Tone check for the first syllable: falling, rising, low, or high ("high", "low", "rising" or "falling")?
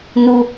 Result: low